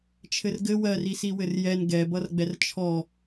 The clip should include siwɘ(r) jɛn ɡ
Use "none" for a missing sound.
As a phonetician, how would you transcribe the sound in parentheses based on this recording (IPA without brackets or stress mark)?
r